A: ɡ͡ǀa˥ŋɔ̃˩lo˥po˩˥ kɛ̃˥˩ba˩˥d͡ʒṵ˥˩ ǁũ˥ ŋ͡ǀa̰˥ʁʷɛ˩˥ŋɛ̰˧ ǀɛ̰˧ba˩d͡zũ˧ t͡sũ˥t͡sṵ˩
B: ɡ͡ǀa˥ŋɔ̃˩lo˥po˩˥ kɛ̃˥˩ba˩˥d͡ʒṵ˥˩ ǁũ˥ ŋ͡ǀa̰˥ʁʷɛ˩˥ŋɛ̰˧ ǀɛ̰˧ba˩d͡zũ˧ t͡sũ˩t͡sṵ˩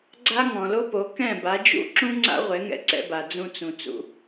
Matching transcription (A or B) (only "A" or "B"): B